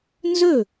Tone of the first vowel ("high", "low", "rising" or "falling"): falling